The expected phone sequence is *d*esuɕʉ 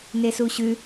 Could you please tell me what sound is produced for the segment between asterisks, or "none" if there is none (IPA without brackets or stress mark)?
n